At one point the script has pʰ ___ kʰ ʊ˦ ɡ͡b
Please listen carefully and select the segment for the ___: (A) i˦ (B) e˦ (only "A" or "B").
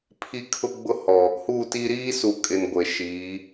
A